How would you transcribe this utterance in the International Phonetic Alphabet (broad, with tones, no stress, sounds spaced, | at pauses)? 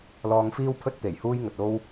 l ɔː˧ ŋ f iː˥ w pʰ ɵ˥ t̚ t̪ e˨˩ j h uː˥ j ŋ ɵ˨ t̚ o˥ w